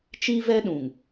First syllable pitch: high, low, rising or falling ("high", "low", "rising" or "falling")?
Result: high